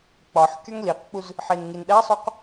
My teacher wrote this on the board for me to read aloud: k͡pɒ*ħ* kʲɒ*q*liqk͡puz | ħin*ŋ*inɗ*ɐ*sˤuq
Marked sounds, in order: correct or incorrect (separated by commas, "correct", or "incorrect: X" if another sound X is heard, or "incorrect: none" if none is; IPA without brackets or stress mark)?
correct, incorrect: ŋ, correct, incorrect: æ